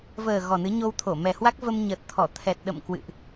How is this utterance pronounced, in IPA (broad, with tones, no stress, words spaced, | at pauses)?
vəː˨˩ ɣɔ˨˩nɨ˨˦ ɲo˧wt̪ʰo˧˩mɛ˨˩hwa˦˥k̚ və˧mɲə˨˩t̚t̪ʰɔ˧˩ t̪ʰɛ˨˩t̚ ɗə̰˧˨mkwɨ̰˧˨ʔ